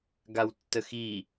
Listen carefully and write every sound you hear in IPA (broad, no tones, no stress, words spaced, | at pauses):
ɡawtːəxi